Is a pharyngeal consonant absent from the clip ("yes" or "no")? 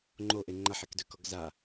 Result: no